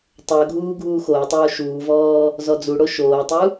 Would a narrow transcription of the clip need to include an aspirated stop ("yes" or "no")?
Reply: no